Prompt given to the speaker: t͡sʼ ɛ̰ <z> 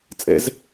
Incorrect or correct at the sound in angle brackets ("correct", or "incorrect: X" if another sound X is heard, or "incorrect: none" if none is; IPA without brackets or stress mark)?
correct